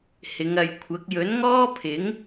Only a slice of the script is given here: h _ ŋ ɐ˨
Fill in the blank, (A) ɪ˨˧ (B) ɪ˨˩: A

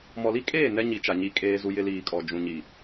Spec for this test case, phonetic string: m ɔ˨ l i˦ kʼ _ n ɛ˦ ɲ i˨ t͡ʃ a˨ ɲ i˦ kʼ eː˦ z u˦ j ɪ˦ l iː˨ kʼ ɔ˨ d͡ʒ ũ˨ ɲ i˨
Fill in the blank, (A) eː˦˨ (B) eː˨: A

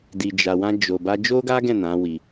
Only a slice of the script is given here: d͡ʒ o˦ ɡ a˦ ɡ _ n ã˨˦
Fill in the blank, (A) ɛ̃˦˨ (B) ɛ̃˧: A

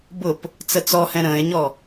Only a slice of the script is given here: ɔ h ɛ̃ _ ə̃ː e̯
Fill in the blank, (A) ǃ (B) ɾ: B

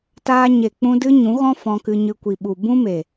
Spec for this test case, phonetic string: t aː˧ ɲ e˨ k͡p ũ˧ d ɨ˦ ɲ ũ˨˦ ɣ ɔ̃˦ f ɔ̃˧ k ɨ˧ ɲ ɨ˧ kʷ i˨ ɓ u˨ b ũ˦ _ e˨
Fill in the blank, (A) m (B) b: A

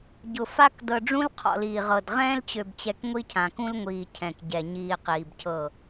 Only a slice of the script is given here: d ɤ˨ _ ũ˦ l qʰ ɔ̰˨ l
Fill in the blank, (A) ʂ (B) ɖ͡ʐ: B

